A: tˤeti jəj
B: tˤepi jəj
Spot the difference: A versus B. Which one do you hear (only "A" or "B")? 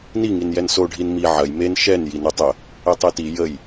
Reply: A